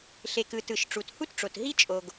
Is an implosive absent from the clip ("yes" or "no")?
yes